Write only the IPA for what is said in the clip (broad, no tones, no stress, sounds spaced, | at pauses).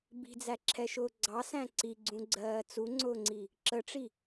b i̤ d͡z æ ǁʰ ɛ ʃ ʊː ɡ͡ǀ ɑ s æ̃ ǀ i ɡ͡ǀ ũ ɡ͡ǀ ɜː t͡s u ŋ͡ǀ ʊː ŋ͡ǀ i | ǁ ə ʈ͡ʂ i